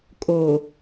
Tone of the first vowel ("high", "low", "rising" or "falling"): low